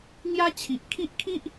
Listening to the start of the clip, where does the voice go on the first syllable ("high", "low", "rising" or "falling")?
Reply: high